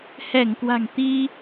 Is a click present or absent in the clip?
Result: absent